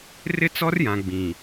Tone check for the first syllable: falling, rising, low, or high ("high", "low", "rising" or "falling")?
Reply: high